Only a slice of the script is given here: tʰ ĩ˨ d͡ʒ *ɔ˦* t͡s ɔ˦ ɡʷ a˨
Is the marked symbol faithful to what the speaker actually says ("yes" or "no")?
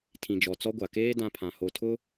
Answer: no